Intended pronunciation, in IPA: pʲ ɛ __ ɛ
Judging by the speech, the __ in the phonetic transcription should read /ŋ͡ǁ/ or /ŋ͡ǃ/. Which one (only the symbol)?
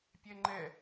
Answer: ŋ͡ǃ